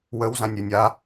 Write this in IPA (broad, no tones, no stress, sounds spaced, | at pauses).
w ə w z ã nʲ ɾʲ o nʲ a